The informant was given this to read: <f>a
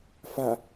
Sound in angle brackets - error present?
no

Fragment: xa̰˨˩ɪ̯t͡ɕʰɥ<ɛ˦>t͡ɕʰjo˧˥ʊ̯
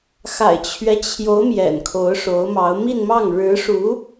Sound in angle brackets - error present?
no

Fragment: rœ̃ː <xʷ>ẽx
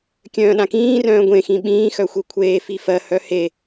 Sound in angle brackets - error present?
yes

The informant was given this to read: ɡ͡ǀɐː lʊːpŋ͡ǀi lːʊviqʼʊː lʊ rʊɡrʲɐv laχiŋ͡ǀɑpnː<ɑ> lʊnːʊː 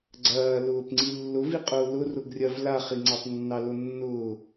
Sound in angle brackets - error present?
no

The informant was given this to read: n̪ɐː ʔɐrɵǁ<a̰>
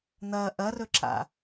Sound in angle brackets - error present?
no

